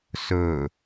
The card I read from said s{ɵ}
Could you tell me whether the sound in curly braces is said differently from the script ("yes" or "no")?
no